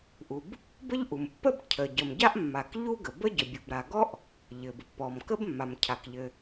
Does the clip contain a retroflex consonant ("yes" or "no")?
no